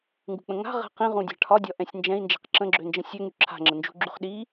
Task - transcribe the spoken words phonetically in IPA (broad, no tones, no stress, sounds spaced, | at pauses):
ŋ ɡ ṳ k͡p ə̃ ŋ a̤ ʁ ɛ̤ q ĩ ʁ ũ dʲ a̤ ʈʰ ɒ dʲ ɒ ʔ ɛ̃ sʲ n d͡ʒ ɛ̃ i̯ n d͡ʒ ɛ̤ q ǁ ə̃ ɡ͡ǁ ø n d͡ʒ ə̃ sʲ ø ŋ y ǁʰ a̤ ŋ͡ǁ ə n d͡ʒ ṳ ɡ͡ǁ y χ ɗ i